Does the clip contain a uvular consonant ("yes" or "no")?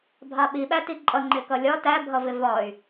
no